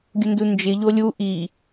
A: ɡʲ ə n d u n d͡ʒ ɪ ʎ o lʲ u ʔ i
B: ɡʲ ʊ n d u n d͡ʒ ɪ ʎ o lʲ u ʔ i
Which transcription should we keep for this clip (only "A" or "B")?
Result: B